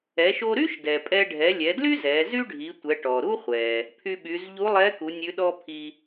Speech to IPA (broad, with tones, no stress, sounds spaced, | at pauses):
ɛ˩˧ ʃ o˧ ɾ y˥ ʃ d ɛ˩ pʼ ɛ˧ ɖʱ ɛ˩˧ lʲ ɛ˩˧ d l y˥ z ɛ˩˧ z y˥ ɖʱ i˩˧ tʷ ɛ˩˧ ʈ ɔ˩ ɾ u˥ χʷ ɛ˩ | pʰ y˧ ɓ y˩˧ z ʎ u˧˥ lˠ ɛ˧˥ k u˩˧ nʲ ʉ˧˥ ɗ ɔ˥ pʰ i˧